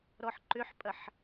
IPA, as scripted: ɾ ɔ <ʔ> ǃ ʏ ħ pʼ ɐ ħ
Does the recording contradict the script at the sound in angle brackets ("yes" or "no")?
yes